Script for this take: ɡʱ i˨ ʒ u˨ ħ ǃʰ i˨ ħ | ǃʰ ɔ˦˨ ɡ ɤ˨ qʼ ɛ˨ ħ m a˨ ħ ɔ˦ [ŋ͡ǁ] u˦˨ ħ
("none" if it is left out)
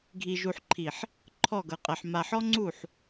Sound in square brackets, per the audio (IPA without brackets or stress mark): ŋ͡ǀ